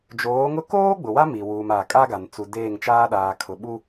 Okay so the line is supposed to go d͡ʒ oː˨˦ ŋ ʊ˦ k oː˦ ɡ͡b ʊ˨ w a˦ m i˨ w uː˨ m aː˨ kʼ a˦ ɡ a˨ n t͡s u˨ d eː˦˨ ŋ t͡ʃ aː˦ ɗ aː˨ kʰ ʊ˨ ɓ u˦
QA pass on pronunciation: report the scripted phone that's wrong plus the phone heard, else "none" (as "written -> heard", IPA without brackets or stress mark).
none